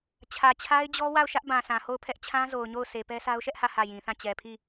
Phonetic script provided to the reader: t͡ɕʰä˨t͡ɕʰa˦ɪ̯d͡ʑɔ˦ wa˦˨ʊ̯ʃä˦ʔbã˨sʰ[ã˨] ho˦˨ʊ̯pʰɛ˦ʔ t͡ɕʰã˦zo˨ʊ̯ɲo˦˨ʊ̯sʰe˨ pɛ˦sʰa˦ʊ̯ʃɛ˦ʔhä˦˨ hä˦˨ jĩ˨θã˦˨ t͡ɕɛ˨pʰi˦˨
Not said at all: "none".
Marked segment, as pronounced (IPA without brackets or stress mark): ã˨